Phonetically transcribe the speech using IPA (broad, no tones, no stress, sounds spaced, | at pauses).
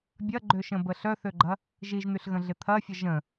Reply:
bʲ ɐ ɡ͡ǃ ø ʃ ə̃ b ə ɬ œ θ ø ɡ͡ǃ ɐ | ʒ i ʒ n̪ y ɬ ɣ ə̃ ɮ ɪ t̪ʰ ɐ fʲ ə ʒ ə̃